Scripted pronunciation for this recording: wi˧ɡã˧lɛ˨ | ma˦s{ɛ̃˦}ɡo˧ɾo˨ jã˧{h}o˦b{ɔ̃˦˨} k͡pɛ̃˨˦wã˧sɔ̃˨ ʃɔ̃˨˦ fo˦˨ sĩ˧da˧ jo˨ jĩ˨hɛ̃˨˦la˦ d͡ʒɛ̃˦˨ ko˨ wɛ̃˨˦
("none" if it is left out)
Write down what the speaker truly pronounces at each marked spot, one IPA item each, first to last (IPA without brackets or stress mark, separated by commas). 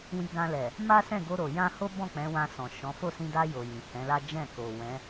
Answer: ɛ̃˦˨, h, ɔ̃˦˨